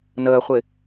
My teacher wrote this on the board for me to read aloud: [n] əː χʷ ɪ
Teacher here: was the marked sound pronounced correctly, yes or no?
yes